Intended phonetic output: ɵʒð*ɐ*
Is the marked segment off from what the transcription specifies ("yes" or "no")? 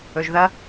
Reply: no